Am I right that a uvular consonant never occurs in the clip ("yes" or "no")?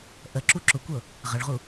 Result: no